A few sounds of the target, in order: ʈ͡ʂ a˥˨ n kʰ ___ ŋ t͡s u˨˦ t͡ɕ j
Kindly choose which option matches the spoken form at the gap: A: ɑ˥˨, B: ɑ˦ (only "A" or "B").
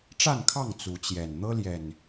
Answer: A